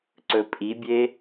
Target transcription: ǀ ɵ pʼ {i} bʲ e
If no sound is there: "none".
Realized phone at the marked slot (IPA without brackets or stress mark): i